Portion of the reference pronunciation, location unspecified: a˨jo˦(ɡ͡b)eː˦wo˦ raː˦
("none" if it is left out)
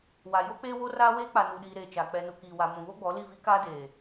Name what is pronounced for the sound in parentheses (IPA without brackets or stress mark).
k͡p